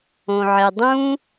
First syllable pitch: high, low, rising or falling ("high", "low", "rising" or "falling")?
low